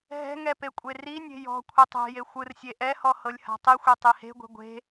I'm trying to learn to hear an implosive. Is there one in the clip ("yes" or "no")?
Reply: no